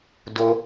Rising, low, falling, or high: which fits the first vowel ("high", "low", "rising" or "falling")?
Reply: high